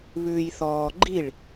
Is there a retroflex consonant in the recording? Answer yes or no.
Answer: yes